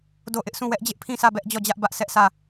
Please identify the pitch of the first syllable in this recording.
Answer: falling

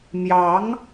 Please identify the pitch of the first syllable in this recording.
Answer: rising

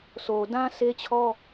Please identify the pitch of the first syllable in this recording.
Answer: low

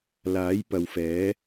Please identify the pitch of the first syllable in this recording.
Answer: rising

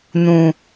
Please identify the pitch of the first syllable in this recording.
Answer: low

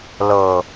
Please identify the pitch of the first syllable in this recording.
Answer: low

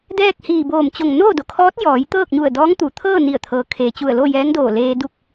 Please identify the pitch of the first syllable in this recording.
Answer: falling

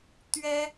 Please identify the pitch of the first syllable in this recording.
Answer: high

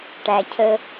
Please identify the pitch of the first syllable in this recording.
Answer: low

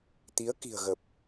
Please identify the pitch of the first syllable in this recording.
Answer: rising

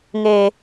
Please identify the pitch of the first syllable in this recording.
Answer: low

